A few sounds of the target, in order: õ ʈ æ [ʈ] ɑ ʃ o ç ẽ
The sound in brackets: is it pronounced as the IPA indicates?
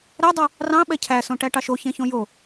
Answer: yes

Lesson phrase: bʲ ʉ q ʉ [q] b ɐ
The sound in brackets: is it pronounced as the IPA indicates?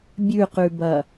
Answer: no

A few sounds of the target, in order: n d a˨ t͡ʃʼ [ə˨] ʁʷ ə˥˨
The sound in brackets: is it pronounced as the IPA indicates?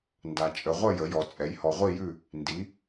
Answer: yes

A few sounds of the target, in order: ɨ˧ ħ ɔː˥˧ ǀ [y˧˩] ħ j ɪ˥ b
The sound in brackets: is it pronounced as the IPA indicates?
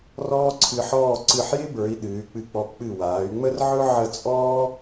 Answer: no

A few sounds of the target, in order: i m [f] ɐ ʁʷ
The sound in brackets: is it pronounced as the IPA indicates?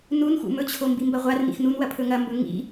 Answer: no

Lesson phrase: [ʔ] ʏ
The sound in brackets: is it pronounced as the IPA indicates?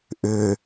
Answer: yes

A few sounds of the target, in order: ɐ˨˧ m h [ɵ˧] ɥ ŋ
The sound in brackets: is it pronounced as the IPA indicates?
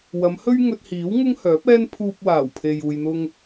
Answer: no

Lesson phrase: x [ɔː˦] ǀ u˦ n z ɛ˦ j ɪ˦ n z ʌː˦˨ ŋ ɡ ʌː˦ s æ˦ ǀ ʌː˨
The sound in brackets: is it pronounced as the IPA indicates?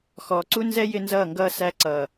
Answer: no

